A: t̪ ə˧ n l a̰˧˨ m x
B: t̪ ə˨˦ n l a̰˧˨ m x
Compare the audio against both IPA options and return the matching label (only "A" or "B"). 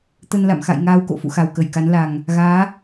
A